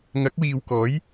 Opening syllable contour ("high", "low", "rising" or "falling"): rising